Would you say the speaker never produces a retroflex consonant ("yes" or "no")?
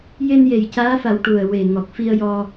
no